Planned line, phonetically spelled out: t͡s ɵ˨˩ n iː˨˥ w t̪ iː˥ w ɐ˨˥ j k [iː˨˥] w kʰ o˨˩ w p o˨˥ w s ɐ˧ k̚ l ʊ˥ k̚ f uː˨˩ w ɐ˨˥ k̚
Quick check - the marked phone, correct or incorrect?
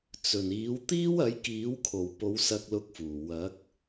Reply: correct